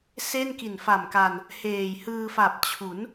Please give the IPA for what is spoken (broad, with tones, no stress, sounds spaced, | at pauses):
s e˥˩ n k i˨˩ n f a˨˩ m k a˧ n | h eː˨˩ j h ɯː˧ f a˨˩ p̚ t͡ɕʰ u˩˦ n